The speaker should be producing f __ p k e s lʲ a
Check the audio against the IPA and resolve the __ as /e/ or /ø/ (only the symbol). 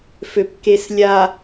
ø